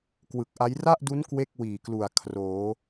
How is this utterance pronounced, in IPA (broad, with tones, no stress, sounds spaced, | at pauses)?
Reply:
k w ɯ˨˩ k̚ ʔ a˦˥ j r a˥˩ ʔ d u˦˥ n k w e˥˩ k̚ w iː˨˩ k l u˨˩ a̯ kʰ r oː˩˦